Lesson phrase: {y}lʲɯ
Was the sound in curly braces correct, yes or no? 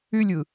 yes